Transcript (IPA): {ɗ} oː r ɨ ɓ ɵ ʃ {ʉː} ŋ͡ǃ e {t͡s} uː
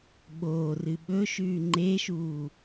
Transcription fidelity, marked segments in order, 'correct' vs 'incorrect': incorrect: ɓ, correct, incorrect: ʃ

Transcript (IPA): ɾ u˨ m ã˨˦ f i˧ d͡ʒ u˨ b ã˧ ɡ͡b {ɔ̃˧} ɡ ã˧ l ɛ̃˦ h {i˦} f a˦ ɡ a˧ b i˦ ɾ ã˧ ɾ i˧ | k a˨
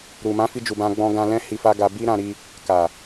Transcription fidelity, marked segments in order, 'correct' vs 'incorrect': correct, incorrect: i˧

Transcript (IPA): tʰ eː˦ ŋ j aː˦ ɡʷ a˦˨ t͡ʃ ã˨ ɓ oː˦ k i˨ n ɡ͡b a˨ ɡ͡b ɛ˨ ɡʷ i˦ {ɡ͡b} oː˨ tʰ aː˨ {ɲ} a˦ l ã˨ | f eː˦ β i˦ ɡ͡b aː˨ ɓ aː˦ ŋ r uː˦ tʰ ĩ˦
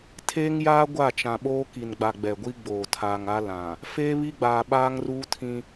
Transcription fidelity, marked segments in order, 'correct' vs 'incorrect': correct, incorrect: ŋ

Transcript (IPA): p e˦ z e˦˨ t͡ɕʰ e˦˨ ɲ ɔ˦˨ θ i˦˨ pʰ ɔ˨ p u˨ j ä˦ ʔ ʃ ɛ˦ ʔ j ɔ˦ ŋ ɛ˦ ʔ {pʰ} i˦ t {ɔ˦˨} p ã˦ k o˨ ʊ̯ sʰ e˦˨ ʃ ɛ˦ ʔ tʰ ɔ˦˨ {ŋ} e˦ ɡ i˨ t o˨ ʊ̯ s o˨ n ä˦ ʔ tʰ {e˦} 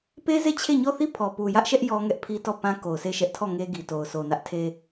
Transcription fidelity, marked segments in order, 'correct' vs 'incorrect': correct, correct, correct, correct

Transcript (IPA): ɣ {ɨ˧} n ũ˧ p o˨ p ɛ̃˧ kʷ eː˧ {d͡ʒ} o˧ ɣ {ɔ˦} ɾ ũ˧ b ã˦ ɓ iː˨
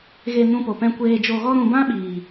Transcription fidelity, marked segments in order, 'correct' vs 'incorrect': incorrect: e˧, correct, correct

